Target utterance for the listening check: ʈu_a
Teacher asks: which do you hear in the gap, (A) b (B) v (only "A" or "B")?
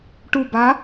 A